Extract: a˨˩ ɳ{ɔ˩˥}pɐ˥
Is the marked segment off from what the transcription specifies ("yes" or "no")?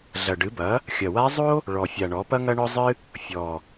no